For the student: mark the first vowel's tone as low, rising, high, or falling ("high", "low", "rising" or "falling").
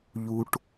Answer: low